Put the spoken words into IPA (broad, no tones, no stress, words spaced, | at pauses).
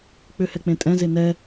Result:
k͡pʏhɛ k͡pẽtʼɛ̃ze nɛ